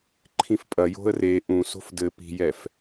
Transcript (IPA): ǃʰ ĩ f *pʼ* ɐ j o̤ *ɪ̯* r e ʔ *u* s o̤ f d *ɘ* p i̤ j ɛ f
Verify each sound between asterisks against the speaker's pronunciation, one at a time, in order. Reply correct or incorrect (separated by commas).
correct, incorrect, incorrect, correct